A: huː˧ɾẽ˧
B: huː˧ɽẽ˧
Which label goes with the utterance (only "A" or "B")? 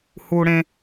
B